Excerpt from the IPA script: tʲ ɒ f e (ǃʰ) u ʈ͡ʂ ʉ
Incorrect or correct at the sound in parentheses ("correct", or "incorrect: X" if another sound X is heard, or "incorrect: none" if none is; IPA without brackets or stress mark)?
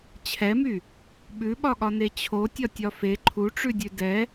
correct